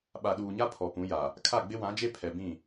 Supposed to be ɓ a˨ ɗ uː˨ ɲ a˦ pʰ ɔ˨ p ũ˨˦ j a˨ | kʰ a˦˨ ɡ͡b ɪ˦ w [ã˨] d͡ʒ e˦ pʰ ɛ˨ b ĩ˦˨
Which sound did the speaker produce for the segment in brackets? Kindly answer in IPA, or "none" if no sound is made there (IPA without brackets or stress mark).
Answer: ã˨˦